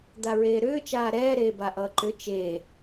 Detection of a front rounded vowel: present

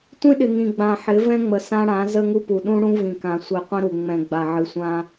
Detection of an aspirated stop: absent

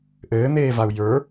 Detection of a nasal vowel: absent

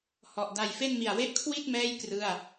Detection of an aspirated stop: present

